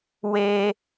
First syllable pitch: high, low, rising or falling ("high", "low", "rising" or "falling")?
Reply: high